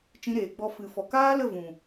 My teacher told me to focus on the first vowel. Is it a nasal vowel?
yes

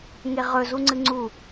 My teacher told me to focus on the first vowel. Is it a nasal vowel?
no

